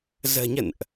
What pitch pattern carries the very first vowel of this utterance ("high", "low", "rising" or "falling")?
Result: low